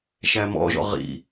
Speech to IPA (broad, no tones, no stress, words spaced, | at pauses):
ʃæmɔ̰ʒɔ̰ ʁḭ